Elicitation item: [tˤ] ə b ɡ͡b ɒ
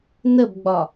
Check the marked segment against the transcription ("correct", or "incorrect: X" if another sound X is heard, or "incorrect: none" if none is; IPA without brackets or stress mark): incorrect: n